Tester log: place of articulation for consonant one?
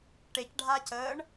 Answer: retroflex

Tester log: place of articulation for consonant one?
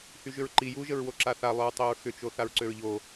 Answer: glottal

